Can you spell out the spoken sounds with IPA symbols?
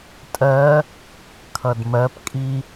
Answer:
tʼ ɜ | kʰ ʌ d m ɜ p kʼ i

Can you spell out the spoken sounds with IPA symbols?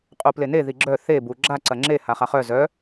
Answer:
qʼ u p l e n e ð i ɡ͡ǁ œ θ e b u ɡ͡ǁ a ǀ ɐ ŋ͡ǁ e h a χ a χ œ z œ

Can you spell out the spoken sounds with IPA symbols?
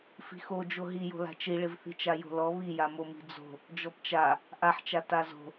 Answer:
f i̤ x o d͡ʒ o ɦ i j o̤ l a̤ t͡ʃ i ɭ ɪ v θ i̤ t͡ʃ a j o̤ l ɔ β i j a m o m i̤ d͡z o̤ | d͡ʒ ɔ p t͡ʃ a | ʔ a ħ t͡ʃ a t a z o̤

